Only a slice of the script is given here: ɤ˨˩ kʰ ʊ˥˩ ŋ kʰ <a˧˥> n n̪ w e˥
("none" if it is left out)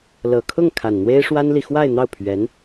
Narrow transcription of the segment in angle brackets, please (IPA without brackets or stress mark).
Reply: a˨˩